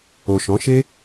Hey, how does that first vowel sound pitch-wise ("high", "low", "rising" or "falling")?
low